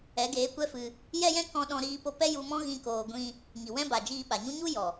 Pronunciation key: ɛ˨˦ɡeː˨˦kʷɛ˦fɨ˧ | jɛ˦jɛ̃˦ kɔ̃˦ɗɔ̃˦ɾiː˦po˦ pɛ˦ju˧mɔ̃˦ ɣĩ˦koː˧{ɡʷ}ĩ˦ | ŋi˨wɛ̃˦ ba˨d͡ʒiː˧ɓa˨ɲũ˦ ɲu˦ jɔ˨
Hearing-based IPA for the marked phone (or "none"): ɡʷ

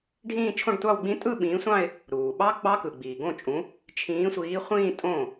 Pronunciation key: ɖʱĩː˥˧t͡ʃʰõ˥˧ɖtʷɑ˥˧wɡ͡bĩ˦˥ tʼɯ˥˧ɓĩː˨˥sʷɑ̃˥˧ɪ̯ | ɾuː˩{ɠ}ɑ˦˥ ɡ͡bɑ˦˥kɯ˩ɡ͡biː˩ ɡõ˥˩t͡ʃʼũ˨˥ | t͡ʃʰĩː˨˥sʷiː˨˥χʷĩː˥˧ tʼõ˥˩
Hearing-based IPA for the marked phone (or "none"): ɓ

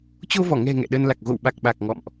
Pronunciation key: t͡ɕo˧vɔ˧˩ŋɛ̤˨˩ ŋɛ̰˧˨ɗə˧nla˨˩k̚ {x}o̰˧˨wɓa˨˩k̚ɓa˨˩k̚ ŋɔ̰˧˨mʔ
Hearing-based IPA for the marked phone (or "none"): ɣ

